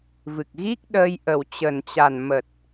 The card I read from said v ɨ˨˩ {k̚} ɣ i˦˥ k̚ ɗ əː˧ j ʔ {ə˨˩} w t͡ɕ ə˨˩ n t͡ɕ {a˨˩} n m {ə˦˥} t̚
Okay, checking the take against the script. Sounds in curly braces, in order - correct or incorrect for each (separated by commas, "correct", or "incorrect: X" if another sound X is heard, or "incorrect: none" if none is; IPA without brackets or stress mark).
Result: correct, correct, correct, incorrect: ə˨˩